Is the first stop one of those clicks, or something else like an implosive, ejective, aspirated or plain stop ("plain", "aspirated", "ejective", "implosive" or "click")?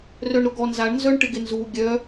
plain